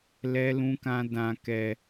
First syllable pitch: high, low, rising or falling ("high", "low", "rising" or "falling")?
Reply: high